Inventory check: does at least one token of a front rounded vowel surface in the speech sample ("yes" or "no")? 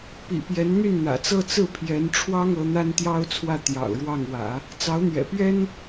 yes